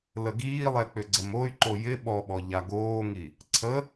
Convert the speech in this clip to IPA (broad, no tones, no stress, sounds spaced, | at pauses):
l ə ɡ iː lˠ ɛ k͡p ʏ ɡ͡ǀ ə m o y̯ ǃ o j ɪ ɓ ɔ ɓ ɔ ʎ a ɡ oː ŋ i | ǀʰ ə